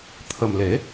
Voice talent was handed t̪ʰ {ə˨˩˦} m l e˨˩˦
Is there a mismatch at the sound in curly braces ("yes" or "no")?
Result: yes